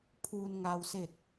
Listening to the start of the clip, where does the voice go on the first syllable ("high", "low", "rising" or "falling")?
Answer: low